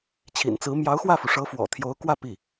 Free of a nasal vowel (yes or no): yes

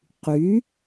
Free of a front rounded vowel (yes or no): no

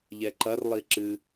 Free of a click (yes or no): no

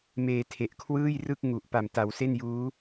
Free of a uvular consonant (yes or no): yes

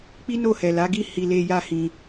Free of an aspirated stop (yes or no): yes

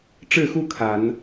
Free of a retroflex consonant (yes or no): no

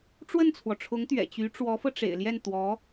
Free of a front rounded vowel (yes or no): no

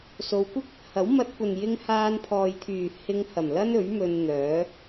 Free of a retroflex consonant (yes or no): yes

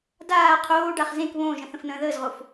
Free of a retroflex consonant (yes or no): no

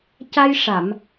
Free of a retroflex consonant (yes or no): no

